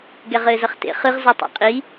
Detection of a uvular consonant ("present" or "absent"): present